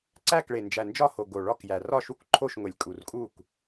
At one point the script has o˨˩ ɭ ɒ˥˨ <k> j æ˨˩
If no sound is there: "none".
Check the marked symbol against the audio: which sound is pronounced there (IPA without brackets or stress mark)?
k